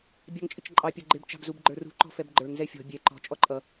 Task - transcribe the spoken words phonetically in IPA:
bʲ ɑ ŋ t͡ʃʼ ɪ t͡ʃ ǃʼ ɑ pʲ ʌ ɡ͡ǃ ɪ b t͡ʃ ɑ̤ b z u b ɡ͡ǃ ə˞ r ṳ ǃ ɔ̤ f ɛ b ɡ͡ǃ ə˞ ŋ z ɛ fʲ ɔ̤ bʲ ɛ ǃ ɔ̤ t͡ʃʼ ɔ ǃʼ ʌ

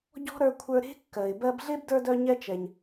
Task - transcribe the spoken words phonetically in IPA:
ɟ ɔ̤˥ ɾ ə˞˦ kʷʰ ə˞˦ ɾ e̤˥ kː ɜ˨ ɪ̯ b ɜ˦ b ɮ e˥ b d ə˞˦ d œ˦ ɲ ɛ˦ t͡ʃ ɛ˨ ɲ

